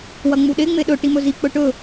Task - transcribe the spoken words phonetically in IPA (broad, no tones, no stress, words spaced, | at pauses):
wɐŋ͡muɗe ŋ͡meɗɵ ʈimɵzi k͡pɵʈɵ